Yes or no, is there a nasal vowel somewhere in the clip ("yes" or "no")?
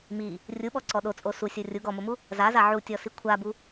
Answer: no